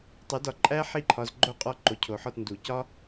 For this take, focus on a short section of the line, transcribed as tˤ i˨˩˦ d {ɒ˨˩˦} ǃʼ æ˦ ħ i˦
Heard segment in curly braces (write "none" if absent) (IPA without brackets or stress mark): ɒ˨